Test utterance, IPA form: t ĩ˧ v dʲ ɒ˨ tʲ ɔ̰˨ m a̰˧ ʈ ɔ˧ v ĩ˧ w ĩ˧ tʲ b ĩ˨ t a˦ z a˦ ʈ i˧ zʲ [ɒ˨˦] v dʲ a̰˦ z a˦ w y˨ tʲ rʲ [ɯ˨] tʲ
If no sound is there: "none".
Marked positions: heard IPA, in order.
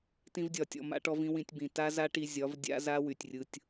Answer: ɒ˨˦, ɯ˧

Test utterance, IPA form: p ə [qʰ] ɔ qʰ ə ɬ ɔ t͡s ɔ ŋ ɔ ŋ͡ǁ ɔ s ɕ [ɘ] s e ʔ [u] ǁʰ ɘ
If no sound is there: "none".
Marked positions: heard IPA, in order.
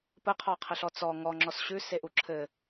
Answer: qʰ, ʉ, u

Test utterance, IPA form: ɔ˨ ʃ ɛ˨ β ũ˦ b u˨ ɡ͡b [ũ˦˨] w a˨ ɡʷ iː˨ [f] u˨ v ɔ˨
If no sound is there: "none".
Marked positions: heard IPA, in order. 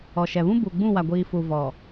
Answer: ũ˦˨, f

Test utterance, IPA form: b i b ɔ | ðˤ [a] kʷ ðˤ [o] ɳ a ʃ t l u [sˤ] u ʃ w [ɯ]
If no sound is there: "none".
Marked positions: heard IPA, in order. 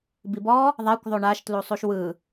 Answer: a, o, sˤ, ɯ

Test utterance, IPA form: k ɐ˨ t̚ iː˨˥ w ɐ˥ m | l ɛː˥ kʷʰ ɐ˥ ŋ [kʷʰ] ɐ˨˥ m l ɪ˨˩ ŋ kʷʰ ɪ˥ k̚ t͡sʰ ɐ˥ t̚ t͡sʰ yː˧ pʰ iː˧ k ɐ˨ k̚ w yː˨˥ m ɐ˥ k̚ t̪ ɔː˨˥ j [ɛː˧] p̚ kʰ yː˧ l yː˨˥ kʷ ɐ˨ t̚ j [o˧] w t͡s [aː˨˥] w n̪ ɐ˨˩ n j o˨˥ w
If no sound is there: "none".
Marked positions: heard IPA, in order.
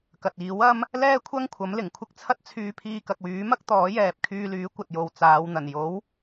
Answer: kʷʰ, ɛː˨, o˨, aː˨˧

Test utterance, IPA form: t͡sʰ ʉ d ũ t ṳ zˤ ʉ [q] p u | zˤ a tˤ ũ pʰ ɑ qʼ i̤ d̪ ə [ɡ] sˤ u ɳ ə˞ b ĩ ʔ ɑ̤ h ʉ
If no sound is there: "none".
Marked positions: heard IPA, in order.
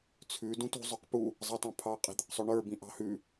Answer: q, q

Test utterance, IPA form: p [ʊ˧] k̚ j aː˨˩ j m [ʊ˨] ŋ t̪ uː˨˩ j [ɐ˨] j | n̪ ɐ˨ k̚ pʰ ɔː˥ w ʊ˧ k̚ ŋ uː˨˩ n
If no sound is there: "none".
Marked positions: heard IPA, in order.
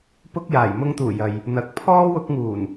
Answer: ʊ˧, ʊ˧, ɐ˨

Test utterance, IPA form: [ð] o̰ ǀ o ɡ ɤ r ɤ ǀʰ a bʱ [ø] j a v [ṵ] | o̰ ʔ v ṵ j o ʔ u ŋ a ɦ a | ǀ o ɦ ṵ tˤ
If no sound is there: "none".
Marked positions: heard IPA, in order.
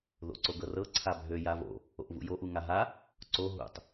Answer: ð, ø, o̰

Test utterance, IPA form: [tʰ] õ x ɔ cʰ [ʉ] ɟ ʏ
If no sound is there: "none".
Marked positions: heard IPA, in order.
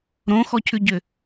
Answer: ɾ, ʉ

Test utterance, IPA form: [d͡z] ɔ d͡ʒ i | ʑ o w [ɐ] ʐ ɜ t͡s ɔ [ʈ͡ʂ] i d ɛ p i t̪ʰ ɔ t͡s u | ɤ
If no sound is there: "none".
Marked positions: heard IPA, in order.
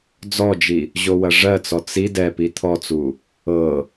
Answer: d͡z, ɐ, t͡s

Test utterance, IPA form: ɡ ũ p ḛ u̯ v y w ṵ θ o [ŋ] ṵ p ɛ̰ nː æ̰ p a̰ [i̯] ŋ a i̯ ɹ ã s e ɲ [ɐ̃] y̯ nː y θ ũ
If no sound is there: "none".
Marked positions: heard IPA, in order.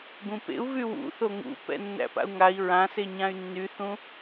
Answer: ŋ, u̯, ã

